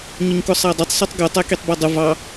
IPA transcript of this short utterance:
ɲ ʊ ɲ k ʊ sˤ æ dˤ ʊ tˤ sˤ i tˤ ɡ ʊ tˤ ɛ k i tˤ b ʌ dˤ ʊ v ɑ

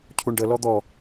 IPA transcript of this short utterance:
cʰ u ɳ ɖ ə l ɔ d̪ ɔ

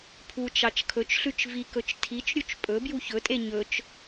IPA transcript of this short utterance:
pʰ u t͡ʃ ɑ t͡ʃ kʰ ɵ t͡ʃ ɬ ʉ t͡ʃ v i k ɵ t͡ʃ tʰ i t͡ʃ ɾʲ u t͡ʃ pʼ ɵ b j u ç ɵ tʼ e ɲ ɵ t͡ʃ

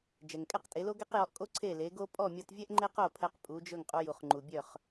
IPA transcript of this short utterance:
d͡ʒ ɛ˩ ŋ kʼ ɛ˥ q tʼ e˩˥ l o˥ ɡ ɛ˥ q j ɔ˧ ʔ kʼ o˥ ǀʰ e˥˩ l e˩˥ ɡ o˥ pʼ ɔ˥˩ mʲ ɔ˧ t vʲ ɛ˥ ʔ ŋ͡ǃ e˥ q o˥˩ pʰ ɛ˧ q pʼ u˩˥ d͡ʒ ɵ˥˩ ŋ qʼ u˧ j u˩ χ ŋ͡ǃ u˩ bʲ œ˥˩ χ

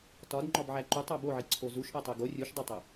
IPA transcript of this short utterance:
t ɒ d ŋ͡ǃ ɒ b ʕ æ ǃ u tˤ æ b o ʕ i ǀʰ o z u ʃ ʔ æ tˤ e ɡ o rʲ u ʃ dˤ o tˤ æ

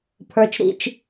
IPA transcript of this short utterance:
pʰ ə˞˦ t͡ʃ ɾ ḭ˦ t͡ʃ

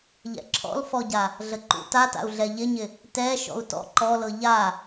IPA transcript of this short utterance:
ʎ ɛ̰ ǁʰ ɔ̰ l f ɔ ɟ a | ɮ ə ǃ ṵ t a t a̰ u̯ ɮ ɛ ʎ ɪ ɲ ɪ | t ɛ ʃ ɔ̰ u̯ t ɔ̰ ǃ ɔ l ɤ ʎ a

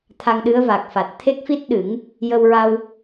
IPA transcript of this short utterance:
t̪ʰ a˧ ŋ ɗ ɨ˧˥ ə̯ v a˨˩ k̚ f a˨˩ t̚ t̪ʰ e˦˥ k̚ f i˦˥ t̚ ɗ ɨ˨˩˦ ŋ | j ə˧ w ɹ a˧ w

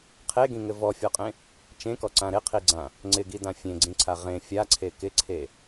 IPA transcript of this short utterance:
qʰ e ɡ ĩ ŋ ɘ v ɔ fʲ ɔ qʼ ẽ | t͡ʃ ẽ k ɔ ǀ ã ɾ ɪ qʰ i ɡ͡ǀ ã | ŋ͡ǀ ɪ ɡ i d ã fʲ ẽ ɡ͡ǀ ĩ ǀʰ a ʁ ẽ fʲ a ǀʰ e k ɪ ǀʰ e

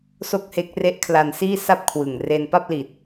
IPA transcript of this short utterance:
s o˥˩ k̚ h e˦˥ k̚ r e˦˥ ʔ kʰ l a˧ n s iː˥˩ s a˥˩ p̚ kʰ w ɯ˨˩ ŋ r e˧ n p a˥˩ p̚ l i˨˩ t̚

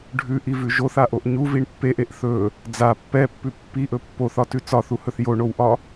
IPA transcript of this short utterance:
ɖʱ ʉ ʔ i v ʉ ʒ o θ a ʔ o ʔ ɲ u v i ɳ pː e ʔ e ʔ θ ɵ | d͡z a pː ɛ pː ʉ pː i ʔ ɵ pː o θ ɒ t ʉ t͡s ɒ θ u h ɵ θ j o ɳ o w ʔ ɒ

